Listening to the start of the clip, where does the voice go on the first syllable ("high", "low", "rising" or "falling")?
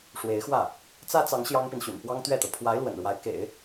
rising